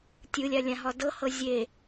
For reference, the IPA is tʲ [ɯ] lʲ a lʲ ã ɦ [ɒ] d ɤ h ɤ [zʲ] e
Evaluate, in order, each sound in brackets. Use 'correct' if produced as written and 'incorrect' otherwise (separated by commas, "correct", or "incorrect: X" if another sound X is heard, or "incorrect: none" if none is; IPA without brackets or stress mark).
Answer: correct, correct, correct